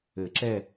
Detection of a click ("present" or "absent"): present